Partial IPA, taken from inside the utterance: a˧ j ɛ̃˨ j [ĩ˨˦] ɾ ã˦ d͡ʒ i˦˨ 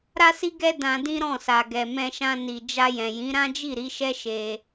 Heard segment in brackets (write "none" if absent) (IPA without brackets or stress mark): ĩ˨˦